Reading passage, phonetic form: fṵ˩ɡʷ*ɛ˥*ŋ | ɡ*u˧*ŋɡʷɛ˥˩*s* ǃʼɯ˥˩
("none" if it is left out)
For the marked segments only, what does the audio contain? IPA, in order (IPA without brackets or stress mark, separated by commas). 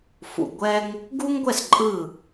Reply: ɛ˥, u˥, s